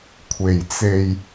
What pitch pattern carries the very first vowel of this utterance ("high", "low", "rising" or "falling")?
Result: low